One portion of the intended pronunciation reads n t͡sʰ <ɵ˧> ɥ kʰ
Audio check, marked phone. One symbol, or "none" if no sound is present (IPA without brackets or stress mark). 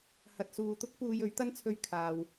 ɵ˧